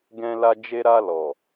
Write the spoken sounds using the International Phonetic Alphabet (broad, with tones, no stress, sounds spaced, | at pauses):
ɡ ɛ̃˧ l a˧ d͡ʒ e˧ ɾ a˧ l ɔ˨